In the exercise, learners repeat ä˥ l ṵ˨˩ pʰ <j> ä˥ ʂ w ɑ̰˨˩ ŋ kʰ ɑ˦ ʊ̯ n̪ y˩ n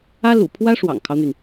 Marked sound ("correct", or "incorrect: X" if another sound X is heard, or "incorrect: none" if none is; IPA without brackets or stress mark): incorrect: w